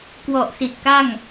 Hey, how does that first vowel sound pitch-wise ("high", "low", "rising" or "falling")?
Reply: low